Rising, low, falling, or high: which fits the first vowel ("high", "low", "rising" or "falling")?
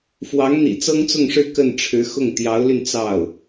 rising